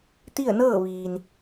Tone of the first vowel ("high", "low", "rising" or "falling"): falling